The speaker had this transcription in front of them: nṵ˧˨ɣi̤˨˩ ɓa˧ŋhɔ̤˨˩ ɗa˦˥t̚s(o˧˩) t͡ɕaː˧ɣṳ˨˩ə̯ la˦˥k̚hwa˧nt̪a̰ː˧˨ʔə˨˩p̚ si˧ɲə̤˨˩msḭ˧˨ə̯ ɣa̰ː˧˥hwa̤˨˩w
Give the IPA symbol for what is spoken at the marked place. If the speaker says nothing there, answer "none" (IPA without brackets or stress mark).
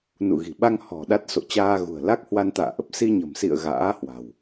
o̰˧˨